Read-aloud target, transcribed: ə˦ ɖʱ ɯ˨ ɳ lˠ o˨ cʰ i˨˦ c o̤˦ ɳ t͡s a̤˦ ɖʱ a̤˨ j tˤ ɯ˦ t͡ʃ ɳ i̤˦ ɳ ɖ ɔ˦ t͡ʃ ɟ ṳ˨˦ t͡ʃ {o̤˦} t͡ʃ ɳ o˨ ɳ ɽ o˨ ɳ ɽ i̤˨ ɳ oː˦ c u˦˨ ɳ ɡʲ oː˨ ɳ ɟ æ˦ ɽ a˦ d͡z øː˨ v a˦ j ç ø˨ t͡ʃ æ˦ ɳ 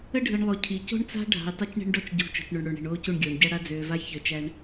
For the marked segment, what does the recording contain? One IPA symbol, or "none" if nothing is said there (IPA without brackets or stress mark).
o̤˨